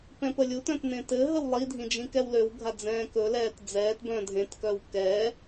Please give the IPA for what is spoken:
pɛ̃pəlʲutœ̃t nẽtɘɦəw lˠidʱĩ d͡ʒĩkɛwløwɡʱa d͡zɛ̃ːkɵlɛːt d͡zɛːtbœ̃ dʱẽtkœw kɛː

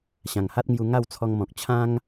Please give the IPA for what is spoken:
ɕã˨˩ŋha˦t̚ŋju˧ ŋa˥˧wt͡sʰɔ˧ŋmɔ̃˨k̚ t͡ɕʰã˦ŋ

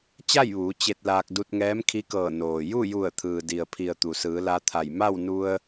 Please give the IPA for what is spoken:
t͡ɕa˥˨jʋuː˩˧ t͡ɕe˧t̚laː˧k̚ du˧t̚ŋɛː˧˥mkʰi˧˥kɤː˧˩ noː˩ ju˥˨ju˧˩ə̯t̪ʰɯː˩ di˩ə̯pʰi˩ə̯ t̪u˩sɯː˩˧ la˧t̪ʰa˧˩j ma˥˨wnu˧ə̯

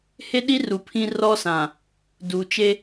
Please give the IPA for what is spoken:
he˦ɗi˦ru˨ pʰĩ˦rɔ˦sã˨ | du˨t͡ʃe˦

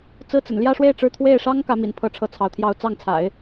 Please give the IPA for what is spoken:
t͡sɹ̩˥t͡sə̰˨˩n ljä˥˧ʂwe˥˧ɪ̯ ʈ͡ʂɻ̩˥˧ t̪ʰwe˥˩ɪ̯ʂɑ˥ŋ kä˧˥mḭ˨˩npʰɤ˧˥ ʈ͡ʂʰɤ˥˩t͡sʰɑ˧˥ʊ̯t̪ʰjɑ˥˧ʊ̯ t͡sɑ˥˩ŋt͡sʰa̰˨˩˦ɪ̯

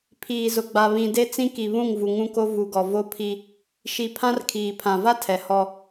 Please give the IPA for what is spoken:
pʰiː˨zʊ˨ɡ͡ba˨ βĩ˨de˦t͡sĩ˦ki˨ βũ˦˨ŋvu˨ ŋũ˦ko˦ vu˨ɡɔ˨ vo˦pʰi˦ | ʃi˨pʰã˦r kʰiː˨pʰã˨ va˦ tʰɛ˨hɔ˦

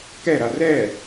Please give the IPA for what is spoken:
kɛɾa rɛ

